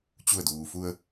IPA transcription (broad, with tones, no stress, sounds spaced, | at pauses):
t͡ɕ u˧˩ ə̯ d uː˩ f u˧ ə̯